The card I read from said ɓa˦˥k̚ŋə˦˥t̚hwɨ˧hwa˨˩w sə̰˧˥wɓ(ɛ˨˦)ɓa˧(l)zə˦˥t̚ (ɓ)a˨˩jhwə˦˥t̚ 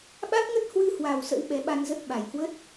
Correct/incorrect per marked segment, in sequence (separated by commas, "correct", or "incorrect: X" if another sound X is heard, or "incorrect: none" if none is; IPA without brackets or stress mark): correct, incorrect: n, correct